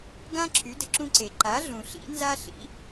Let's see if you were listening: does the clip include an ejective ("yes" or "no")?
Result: no